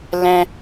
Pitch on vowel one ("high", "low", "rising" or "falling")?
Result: high